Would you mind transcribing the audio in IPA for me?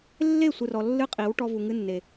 lː e˦˨ sʷ ɨ˨ r ɔ˨ lː ɨ˧ qʼ i˨˦ w ʈ ɔ˧ v u˨ ŋ ɨ˧ nː e˨

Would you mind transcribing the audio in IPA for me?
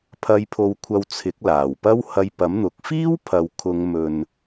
pʰ ɐ˧ j pʰ o˨˧ w kʷʰ ɐ˧ w t͡sʰ ɪ˨˥ k̚ l aː˨˩ w p ɐ˥ w h ɐ˧ j p ɐ˨˥ m n̪ ʊ˨˥ k̚ f iː˥ w pʰ ɐ˨ w kʰ ʊ˨˧ ŋ m ɵ˨ n

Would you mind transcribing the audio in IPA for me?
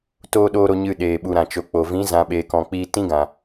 t oː˦ ɗ oː˦ ɾ o˧ ɲ ɨ˧ ɗ eː˨ ɓ u˨ ɾ ã˨ t͡ʃ o˨ k͡p o˨ v ĩ˨˦ z ã˨ ɓ eː˨ k ɔ̃˨ k͡p iː˧ t ĩ˦ ɡ ã˨

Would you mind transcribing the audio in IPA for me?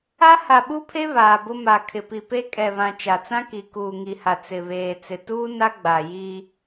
a˦ h a˨ ɓ u˦ pʰ e˦ β aː˨ b ʊ˦ m a˨ kʰ ɪ˨ p i˨ p e˦ kʼ ɛ˨ β ã˨ t͡ʃ a˨ t͡s ã˦ k i˨ k uː˨ ŋ i˨ h a˨ t͡s ɪ˨ β eː˨ t͡s ɪ˨ t uː˦ n a˦ ɡ͡b a˨ j i˦

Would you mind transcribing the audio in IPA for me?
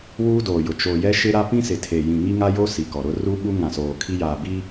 w uː˦ d oː˨ j ʊ˨ t͡ʃ o˨ j ɛ˦ ʃ ɪ˦ ɾ a˦ p ĩ˦ s ɪ˨ tʰ e˨ j ĩ˨ ŋ i˦ ŋ a˦ j o˦ s i˨ k ɔ˨ ɾ ʊ˦ r u˦ ɓ u˦ ŋ ã˨ s oː˨ kʰ i˦ j aː˨ b i˦

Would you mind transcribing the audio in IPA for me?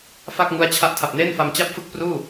f a˥˩ k̚ ŋ u˦˥ a̯ t͡ɕʰ a˦˥ ʔ tʰ a˨˩ p̚ n eː˥˩ n f a˧ m t͡ɕ a˥˩ p̚ f ɯ˥˩ k̚ p r uː˥˩

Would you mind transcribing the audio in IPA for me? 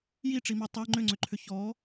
j i ʈ͡ʂ i m e tˤ e ŋ͡ǃ ʏ ŋ͡ǀ ʏ ǃʰ ʏ ç ɔ

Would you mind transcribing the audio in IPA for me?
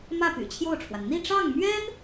m ä˥˩ p y̰˨˩ t͡ɕʰ j o˥˩ ʊ̯ ʈ͡ʂʰ w a˩ n n̪ i˥˧ ʈ͡ʂ ɑ˥˩ ŋ m ɥ ɛ˥ n

